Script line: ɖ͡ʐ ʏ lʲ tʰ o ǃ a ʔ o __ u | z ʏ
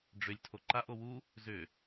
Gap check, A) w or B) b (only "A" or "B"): A